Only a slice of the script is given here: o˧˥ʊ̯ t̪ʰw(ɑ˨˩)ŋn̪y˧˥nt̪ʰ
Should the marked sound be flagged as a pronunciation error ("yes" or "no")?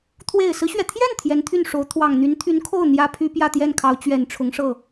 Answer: no